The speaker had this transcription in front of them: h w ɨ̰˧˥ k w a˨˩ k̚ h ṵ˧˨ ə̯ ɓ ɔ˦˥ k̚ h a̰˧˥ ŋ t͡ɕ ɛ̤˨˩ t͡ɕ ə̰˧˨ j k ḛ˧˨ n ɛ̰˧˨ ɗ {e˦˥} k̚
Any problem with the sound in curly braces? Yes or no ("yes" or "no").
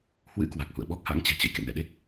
no